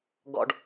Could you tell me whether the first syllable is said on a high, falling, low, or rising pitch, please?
low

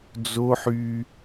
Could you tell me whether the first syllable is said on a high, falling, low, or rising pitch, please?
high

